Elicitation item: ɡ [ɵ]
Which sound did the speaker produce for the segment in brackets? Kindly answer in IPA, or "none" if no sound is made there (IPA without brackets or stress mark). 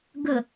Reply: ə